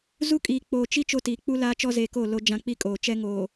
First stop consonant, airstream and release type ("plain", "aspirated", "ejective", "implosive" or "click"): ejective